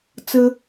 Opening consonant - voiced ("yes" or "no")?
no